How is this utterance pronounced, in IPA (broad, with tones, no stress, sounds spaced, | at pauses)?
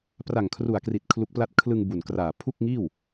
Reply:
p r a˨˩ ŋ kʰ r u˨˩ a̯ k r i˨˩ t̚ kʰ l u˦˥ k̚ p l a˥˩ t̚ kʰ l ɯ˧ ŋ b u˨˩ n k r aː˨˩ pʰ u˥˩ k̚ ŋ iː˥˩ w